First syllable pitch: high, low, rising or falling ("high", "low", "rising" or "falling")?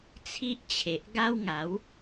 high